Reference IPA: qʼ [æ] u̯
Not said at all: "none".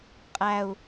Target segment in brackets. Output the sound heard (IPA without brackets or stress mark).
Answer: æ